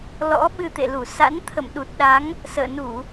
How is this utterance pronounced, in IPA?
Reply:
l ɔ̰˧˥ ɓ ɨ˧ t̪ ḛ˧˨ l u˧˩ s a̰˧˥ n t̪ʰ ə̰˧˨ m ɗ u˨˩ t̚ ɗ a˨˦ ŋ | s ə̰ː˧˨ n u˧˩˨

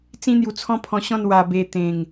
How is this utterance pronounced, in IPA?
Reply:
t͡s ĩ˦ n̪ j u˧ t͡sʰ ɔ̃˦ pʰ ɔ̃˧ ɕ ɔ̃˥˧ n w a˧ b e˧ t̪ ẽ˨˩ ŋ

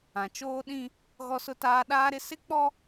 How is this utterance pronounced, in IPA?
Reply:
ã˨ t͡ʃ oː˦ ɗ ĩ˦ | ɣ ɔ˦ s ʊ˦ t aː˦ ɗ aː˦ ɾ ɪ˦ s ɪ˦ k͡p ɔ˦

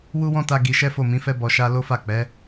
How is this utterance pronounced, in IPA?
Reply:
w u˦ w ɔ̃˦ t a˧ ɡ i˧ ʃ ɛ˦ f o˦˨ m ĩ˨˦ f ɛ˦ b ɔ˧ ʃ a˦ l o˦ f a˦˨ k͡p ɛ˨˦

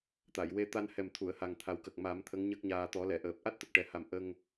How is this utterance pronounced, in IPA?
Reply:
t̪ a˨˩˨ j w e˧ t̪ a˧ n h ɛ˨˩ m t̪ʰ u˨˩˨ ə̯ h a˨˩ ŋ t̪ʰ a˨˩ w k ə˨˩ k̚ m a˨˩˦ m t̪ʰ ə˧˥ ŋ ɲ ə˦˥ k̚ ɲ aː˧ t̪ ɔ˨˩˦ l ɛ˨˩˨ ʔ əː˨˩ p̚ ʔ a˦˥ t̚ t̪ ə˨˩ k̚ ʈ ɛ˨˩ h a˨˩ m ʔ ə˧ ŋ

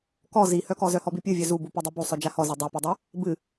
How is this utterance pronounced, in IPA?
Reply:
k ɔ z i h œ k ɔ z œ h ɔ b i pʲ ɨ vʲ œ z u b u p œ dˤ i b u sˤ œ d͡ʒ a h ɔ z œ dˤ œ p u dˤ a | b ɨ

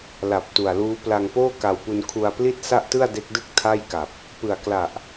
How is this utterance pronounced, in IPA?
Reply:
l a˨˩ p̚ t u˨˩ a̯ l uː˦˥ p l a˧ ŋ p oː˥˩ k a˧ w p u˧ n kʰ u˧ a̯ p l i˥˩ t̚ s a˥˩ ʔ t ɯ˥˩ a̯ d e˦˥ k̚ d ɯ˥˩ k̚ tʰ a˥˩ j k a˨˩ p̚ | p ɯ˨˩ a̯ k l a˨˩ ʔ

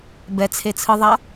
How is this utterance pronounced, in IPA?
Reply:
b ɛ t͡sʰ e t͡sʰ ɯ ðˤ a

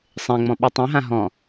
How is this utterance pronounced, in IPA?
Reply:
sˤ ẽ ŋ͡m ɔ̃ ɓ y tˤ ũ ɦ ã ɦ ɔ̃

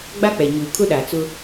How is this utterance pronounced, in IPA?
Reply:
ɡ͡b a˦ k͡p ɛ˨ ɲ uː˨ kʰ ʊ˦ ɗ a˨ t͡s ʊ˦

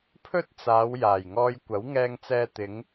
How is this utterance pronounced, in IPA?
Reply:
pʰ ɵ˥ t̚ t͡s aː˨˧ w j aː˨˩ j ŋ ɔː˧ j kʷ ɐ˨˥ w ŋ ɛː˧ ŋ t͡s ɛː˧ t̪ ɪ˨˧ ŋ

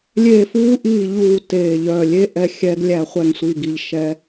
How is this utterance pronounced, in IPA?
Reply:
lʲ eː˦˨ f uː˦˥ ʔ iː˦˨ ʎ uː˦˨ t eː˦˨ ʎ œ˦˨ lʲ e˦˥ ʔ ɛ˦˨ xʲ ɛ˦˥ ɡ lʲ æ˦˨ χʷ ɛ˦˨ ŋ sʷ iː˦˨ ɡ i˦˨ ʎ ʃ ɛ˦˥

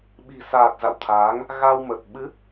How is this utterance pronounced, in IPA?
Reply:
ɓ i̤˨˩ s aː˨˩ t̚ z a̰˧˨ w t̪ʰ aː˨˦ ŋ | ɣ a˧ w m ə˨˩ t̚ ɓ ɨ˨˦

